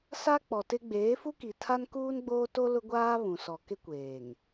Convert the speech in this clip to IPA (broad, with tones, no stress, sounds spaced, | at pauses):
s a˦ k͡p ɔ˨ t ɪ˦ ɡ͡b eː˨˦ f u˦ k i˨ tʰ a˦ n k uː˦ n ɡ͡b oː˦ t o˦ l ʊ˦ ɡʷ aː˦ β ũ˨ s ɔ˨ k ɪ˦ kʷ eː˨ ŋ